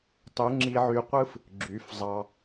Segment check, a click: present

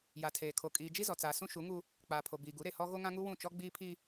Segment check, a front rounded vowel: absent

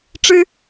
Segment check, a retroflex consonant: present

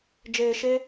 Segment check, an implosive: absent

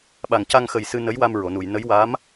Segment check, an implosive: present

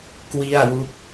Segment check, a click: absent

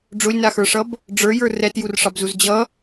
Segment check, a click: absent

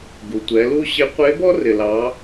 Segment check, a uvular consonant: present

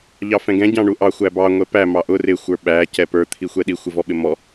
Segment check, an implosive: present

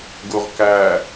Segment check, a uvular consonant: present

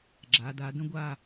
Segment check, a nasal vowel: present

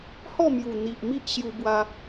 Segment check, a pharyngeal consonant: absent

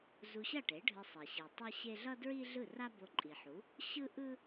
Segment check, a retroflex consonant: present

